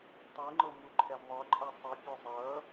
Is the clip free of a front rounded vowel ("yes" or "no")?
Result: no